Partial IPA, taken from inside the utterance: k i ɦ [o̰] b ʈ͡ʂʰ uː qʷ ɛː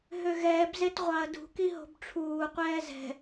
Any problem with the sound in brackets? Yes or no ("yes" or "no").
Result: yes